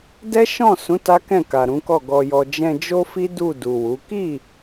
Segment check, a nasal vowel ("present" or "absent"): present